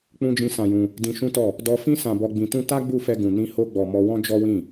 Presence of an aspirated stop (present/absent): absent